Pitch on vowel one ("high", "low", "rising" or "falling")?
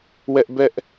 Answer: high